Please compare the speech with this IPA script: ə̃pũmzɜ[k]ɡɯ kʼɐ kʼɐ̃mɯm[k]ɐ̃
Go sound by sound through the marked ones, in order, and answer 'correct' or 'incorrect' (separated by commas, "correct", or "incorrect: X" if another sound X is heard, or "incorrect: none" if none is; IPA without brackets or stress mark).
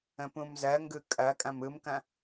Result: incorrect: ŋ, correct